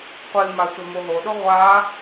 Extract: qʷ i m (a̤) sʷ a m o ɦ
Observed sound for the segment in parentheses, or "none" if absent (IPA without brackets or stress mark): a